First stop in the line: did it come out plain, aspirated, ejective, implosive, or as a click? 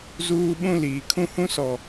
implosive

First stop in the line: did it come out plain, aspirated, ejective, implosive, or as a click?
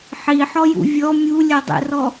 plain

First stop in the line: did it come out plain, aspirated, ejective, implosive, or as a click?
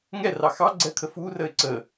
click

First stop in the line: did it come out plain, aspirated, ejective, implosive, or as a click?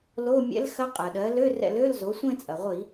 ejective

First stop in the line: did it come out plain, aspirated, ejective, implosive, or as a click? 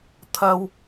aspirated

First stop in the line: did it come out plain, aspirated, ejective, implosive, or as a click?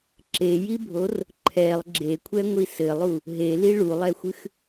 click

